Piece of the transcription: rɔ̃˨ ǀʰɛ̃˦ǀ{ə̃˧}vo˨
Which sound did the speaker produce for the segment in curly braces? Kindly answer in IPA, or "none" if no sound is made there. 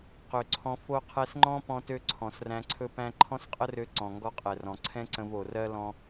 ə̃˧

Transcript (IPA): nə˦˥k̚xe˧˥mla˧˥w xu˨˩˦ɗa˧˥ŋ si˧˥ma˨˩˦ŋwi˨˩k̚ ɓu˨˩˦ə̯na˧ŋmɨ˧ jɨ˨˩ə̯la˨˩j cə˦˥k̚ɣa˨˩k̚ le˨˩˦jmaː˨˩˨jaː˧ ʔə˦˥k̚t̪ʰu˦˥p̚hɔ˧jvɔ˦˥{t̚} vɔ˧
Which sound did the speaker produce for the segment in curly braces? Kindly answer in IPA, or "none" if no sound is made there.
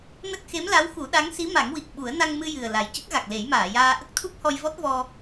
t̚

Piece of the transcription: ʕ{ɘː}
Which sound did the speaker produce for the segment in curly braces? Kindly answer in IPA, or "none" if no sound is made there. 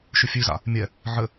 ɘ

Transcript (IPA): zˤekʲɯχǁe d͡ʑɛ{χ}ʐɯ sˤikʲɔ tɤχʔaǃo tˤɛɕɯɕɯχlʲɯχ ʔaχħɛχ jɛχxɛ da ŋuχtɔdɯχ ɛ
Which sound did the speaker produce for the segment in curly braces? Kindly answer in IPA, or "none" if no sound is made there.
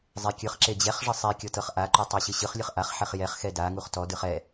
χ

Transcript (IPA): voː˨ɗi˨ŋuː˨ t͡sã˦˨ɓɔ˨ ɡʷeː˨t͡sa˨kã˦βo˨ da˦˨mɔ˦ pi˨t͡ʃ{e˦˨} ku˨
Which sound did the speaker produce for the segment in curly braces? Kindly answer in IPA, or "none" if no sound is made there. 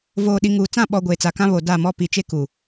e˦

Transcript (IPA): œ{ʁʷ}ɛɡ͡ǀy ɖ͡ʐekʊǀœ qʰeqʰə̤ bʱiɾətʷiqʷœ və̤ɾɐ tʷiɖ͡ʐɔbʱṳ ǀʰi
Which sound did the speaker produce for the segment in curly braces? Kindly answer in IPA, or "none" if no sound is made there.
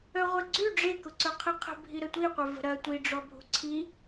ʁʷ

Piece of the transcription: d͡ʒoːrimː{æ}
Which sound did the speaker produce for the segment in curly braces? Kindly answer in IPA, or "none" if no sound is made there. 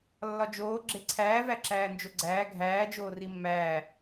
æː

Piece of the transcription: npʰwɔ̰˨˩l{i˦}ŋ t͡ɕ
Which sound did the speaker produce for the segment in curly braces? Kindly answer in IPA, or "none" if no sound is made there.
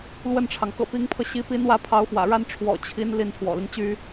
i˦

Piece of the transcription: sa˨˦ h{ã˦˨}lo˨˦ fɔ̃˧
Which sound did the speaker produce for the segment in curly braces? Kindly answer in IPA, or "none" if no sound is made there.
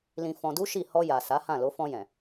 ã˦˨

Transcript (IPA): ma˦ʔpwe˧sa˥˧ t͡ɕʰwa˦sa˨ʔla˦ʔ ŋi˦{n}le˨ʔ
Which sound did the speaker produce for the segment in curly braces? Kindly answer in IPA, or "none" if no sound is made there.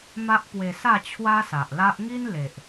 n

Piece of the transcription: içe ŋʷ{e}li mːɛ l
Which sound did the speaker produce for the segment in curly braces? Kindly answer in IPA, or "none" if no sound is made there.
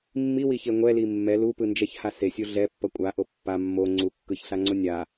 ɛ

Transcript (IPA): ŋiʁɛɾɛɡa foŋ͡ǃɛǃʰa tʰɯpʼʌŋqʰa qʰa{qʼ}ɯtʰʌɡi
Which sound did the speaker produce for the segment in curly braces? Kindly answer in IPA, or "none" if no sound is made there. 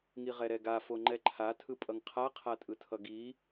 tʼ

